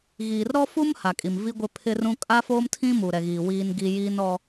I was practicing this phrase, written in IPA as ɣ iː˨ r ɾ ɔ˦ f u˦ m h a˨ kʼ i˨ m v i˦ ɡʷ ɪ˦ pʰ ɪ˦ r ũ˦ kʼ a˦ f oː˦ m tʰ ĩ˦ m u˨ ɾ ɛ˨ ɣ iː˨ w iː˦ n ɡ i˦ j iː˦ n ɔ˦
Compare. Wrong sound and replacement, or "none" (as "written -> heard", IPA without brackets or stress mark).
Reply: none